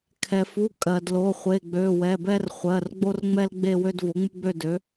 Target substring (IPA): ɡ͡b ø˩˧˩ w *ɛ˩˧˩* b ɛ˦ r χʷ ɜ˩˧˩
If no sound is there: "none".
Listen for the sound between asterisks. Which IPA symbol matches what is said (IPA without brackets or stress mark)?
ɛ˩˧˩